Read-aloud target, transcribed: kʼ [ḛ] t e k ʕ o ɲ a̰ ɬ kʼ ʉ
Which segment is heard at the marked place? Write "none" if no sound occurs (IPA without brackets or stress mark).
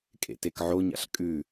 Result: ḛ